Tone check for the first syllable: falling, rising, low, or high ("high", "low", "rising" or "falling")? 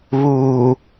low